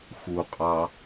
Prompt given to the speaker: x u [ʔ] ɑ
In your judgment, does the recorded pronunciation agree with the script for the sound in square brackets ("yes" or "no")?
no